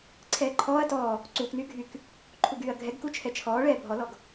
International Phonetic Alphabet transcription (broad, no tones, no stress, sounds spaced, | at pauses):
ǀʰ ɛː ǃʰ ɔː ɐ̯ t ɔː | ǀ uː k n yː ɡʱ y k | ǃʰ u ɡ yː ɐ̯ ɡʱ ɛ ɡ k u t͡ʃʰ ɛ t͡ʃʰ ɔː ɭ ɛː bʱ ɔ l ɔ ɡ